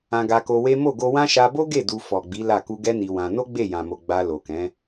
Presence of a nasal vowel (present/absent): present